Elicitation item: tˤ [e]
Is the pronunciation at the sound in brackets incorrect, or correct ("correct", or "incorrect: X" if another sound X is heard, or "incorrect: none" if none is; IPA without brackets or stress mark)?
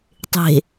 incorrect: e̤